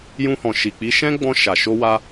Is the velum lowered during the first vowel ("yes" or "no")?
yes